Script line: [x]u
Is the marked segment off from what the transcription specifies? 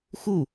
no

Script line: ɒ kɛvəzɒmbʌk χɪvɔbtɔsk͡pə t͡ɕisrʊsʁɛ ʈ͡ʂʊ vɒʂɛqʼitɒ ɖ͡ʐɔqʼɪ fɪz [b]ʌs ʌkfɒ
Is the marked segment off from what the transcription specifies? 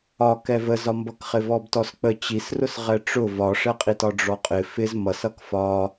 yes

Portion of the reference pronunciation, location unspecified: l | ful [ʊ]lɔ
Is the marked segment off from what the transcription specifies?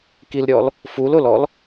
no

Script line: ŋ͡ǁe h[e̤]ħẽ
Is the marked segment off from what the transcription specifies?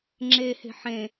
no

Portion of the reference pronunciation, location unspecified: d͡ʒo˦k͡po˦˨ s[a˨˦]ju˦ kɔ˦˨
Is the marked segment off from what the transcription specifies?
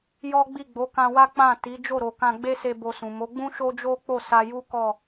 yes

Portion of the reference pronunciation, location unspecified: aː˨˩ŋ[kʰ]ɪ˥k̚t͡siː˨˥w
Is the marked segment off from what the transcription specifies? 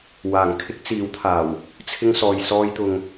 no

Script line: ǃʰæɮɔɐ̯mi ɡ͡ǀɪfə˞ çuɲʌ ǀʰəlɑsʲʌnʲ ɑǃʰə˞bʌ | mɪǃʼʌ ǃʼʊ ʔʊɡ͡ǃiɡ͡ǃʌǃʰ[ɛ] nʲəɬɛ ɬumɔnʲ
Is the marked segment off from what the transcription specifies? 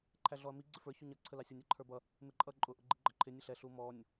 yes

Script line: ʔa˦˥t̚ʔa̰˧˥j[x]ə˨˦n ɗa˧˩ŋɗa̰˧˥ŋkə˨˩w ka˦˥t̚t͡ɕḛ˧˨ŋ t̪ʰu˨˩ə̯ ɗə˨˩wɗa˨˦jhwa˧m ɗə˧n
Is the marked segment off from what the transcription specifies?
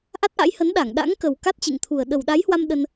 yes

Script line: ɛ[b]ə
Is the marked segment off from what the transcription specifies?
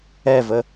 yes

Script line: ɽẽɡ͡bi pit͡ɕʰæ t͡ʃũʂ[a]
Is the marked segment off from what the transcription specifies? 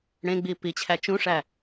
yes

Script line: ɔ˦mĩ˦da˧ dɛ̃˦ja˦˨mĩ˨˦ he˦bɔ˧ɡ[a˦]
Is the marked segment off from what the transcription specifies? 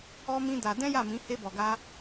no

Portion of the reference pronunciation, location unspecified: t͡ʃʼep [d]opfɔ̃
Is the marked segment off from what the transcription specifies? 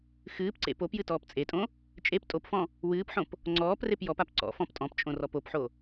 yes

